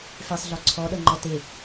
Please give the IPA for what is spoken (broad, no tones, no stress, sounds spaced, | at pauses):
f e sˤ ɮ ɔ ǀʰ ɔ ɗ ʌ ŋ͡ǃ ɔ t e